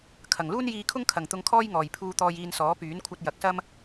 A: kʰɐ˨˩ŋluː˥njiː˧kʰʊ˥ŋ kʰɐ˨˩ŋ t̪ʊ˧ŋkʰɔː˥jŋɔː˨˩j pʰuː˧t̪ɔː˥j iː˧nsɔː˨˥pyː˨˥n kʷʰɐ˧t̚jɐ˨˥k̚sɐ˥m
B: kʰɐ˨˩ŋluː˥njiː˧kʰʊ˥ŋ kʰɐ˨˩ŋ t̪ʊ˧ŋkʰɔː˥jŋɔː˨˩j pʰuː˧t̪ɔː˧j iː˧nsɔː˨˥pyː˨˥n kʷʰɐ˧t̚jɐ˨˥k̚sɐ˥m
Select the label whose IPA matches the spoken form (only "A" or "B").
B